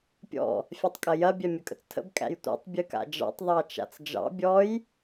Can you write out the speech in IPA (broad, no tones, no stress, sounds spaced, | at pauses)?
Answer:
pʲ ɔ̰ | fʲ æ tˤ kʼ ɐ j ɐ bʲ æ mʲ ə kʼ ə̰ t͡s tʰ ə̰ b kʼ æ̰ j tʷ a̰ tˤ bʲ ɨ k a̰ d͡ʒ ɑ̰ tˤ ðˤ ɑ t͡ʃ a̰ t͡s d͡ʒ ɑ̰ bʲ ɔ j